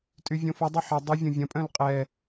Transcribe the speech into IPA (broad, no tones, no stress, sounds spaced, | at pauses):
tʼ y vʲ õ f ɐ dˤ ʏ ħ ɐ dˤ y vʲ õ vʲ ɐ̃ pʼ œ̃ l qʼ ɛ